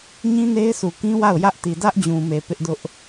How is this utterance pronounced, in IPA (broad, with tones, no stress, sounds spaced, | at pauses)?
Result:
ɲ ĩ˦ n e˦ ɪ̯ s u˨ k ĩ˦ w a˦˨ ʊ̯ j ä˦ ʔ t i˨ d ä˦ ʔ d͡ʑ ũ˨ m e˨ p ɪ˦ ʔ d ʊ˦ ʔ